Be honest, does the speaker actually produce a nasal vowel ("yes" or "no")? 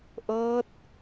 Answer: no